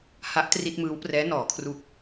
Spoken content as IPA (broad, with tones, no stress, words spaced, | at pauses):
ha˦˥ʔtri˥˩t̚mɯː˦˥wprɛː˦˥ nɔː˩˦ kʰru˨˩k̚